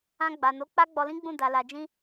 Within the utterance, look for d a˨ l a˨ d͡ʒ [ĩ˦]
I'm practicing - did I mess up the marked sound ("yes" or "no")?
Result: yes